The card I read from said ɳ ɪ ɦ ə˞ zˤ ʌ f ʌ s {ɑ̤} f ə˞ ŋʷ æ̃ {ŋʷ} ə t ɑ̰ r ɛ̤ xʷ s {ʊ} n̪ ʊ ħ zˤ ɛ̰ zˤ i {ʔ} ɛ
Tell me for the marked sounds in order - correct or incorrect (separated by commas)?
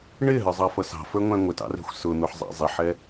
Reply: correct, correct, correct, incorrect